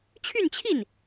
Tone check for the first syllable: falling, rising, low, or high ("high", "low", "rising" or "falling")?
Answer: falling